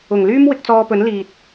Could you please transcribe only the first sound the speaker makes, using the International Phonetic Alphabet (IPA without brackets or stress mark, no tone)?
ʊ